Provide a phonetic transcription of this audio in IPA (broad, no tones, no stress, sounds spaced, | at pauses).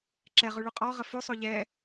ǁ ɛ ʁ ʉ ɭ ʉ qʼ ɔ ʁ ə f ʉ sˤ o ʎ ɛ